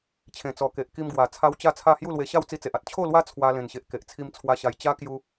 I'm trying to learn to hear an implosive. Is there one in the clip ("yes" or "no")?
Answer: no